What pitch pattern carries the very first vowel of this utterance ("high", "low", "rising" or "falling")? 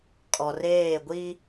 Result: low